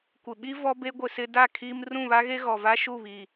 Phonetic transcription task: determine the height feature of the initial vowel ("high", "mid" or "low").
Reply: high